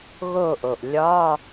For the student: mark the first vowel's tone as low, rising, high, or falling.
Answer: falling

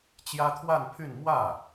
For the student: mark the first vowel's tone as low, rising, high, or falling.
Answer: high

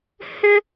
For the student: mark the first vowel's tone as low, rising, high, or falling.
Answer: high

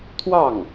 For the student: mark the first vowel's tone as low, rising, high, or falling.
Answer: falling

